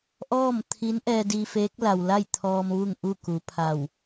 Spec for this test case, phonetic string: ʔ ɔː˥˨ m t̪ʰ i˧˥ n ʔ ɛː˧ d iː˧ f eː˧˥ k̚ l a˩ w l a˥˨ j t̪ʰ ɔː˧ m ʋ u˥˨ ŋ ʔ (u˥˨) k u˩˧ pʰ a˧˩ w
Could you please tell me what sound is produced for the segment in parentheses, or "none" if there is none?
u˥˨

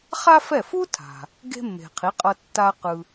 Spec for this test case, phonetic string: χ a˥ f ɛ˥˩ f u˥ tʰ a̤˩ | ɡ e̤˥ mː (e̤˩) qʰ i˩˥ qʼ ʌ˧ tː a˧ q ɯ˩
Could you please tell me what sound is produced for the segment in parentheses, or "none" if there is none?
e̤˩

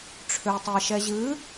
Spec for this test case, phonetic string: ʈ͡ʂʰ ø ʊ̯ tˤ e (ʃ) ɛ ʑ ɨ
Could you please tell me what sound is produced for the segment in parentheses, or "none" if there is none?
ʃ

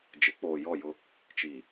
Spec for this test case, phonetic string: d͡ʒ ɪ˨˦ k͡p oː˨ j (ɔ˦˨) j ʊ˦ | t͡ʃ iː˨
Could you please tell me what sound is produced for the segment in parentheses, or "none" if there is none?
ɔ˦˨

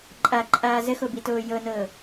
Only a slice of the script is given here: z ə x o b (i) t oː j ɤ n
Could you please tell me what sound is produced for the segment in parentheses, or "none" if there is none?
i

